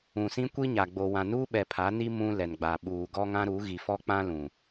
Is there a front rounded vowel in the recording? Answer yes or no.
no